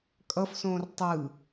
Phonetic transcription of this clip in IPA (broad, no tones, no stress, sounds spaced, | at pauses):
kʼ ʌ f s õː r tˤ ɯ